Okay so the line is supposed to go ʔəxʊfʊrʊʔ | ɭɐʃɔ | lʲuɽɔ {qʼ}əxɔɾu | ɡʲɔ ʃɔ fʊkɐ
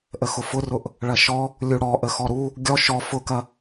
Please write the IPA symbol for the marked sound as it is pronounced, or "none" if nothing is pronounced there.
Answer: ʔ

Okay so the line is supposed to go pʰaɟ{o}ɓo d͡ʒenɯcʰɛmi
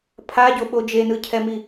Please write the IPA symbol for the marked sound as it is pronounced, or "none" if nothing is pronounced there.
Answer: o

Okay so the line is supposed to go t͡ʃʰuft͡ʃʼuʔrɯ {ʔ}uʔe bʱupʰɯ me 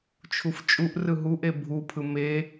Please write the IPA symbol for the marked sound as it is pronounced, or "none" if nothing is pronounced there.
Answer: ɦ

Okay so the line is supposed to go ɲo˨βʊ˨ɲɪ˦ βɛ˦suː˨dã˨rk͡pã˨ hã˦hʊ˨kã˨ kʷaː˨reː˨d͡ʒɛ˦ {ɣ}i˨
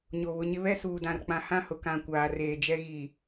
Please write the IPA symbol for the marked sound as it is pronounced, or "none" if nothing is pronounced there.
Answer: ɣ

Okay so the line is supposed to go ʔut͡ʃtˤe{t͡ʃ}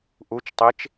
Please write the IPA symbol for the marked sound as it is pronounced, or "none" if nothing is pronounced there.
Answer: t͡ʃ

